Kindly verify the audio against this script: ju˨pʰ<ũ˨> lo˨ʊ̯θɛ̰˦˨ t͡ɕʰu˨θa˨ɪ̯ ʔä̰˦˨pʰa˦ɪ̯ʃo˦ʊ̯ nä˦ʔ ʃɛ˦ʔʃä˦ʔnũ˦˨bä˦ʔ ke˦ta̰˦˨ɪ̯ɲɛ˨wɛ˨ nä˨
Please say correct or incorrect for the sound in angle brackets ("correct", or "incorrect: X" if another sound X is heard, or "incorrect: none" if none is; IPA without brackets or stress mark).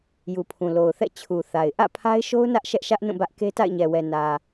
correct